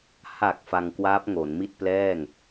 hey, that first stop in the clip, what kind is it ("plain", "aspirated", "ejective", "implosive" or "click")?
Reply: plain